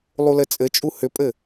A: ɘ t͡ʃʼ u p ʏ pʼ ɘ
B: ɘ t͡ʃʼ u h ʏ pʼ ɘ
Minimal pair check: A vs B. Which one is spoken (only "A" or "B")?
B